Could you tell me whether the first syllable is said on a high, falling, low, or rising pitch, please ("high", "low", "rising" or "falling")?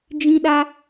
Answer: high